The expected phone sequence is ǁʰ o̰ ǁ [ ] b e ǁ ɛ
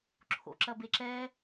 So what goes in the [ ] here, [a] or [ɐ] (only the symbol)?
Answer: ɐ